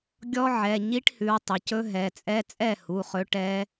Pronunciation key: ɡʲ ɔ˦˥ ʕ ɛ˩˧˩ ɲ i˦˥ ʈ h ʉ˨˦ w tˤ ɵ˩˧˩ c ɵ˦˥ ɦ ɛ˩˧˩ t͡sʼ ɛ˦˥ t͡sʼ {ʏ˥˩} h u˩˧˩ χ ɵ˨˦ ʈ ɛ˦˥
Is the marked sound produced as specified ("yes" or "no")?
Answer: no